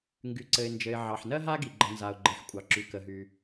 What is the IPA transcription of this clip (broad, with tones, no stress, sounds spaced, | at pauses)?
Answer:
ŋ ɡ y˩ ǀ ɘ˩ ɪ̯ n d͡ʒ ɘ˩ ɪ̯ ʕ ɑ˩ ħ n ɜ˥ ɦ a˥ ɡ i˩ ɡ͡ǃ ə˩ n z a˩ ʊ̯ ɡ͡ǃ ɘ˩ ħ kʷʼ ɑ˩ ǁ y˩ k ə˩ ɦ y˩